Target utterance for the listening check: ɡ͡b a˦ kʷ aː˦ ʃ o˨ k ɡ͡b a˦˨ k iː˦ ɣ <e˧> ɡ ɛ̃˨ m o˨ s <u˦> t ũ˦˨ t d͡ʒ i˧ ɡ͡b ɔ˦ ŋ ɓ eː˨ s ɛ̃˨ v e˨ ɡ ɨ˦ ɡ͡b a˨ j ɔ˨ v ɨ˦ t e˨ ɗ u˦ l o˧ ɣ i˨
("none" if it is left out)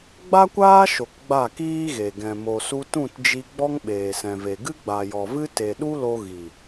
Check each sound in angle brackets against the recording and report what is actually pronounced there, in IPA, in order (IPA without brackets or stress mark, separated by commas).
e˨, u˧